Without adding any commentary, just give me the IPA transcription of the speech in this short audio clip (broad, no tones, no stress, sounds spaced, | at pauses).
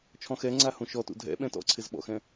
t͡ʃʰ ɔ̃ x ɛ ŋ͡ǀ a h ũ ʃ ɔ t ṵ dʱ ɛ̰ ɓ ɛ̃ t ɔ̰ ǀʰ ɪ z ɓ ɔ̰ x ɛ̃